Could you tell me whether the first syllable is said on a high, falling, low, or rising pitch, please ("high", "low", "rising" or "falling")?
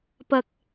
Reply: low